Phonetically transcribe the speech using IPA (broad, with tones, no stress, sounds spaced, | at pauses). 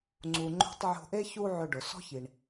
ŋ͡ǀ u˩ ŋ͡ǃ o̤˥ tˤ ʕ o̤˧ ʔ e˥ ç u˥ ʕ ʏ˧ ɖ ʊ˩ s ɔ̤˥ ç i˩ ɳ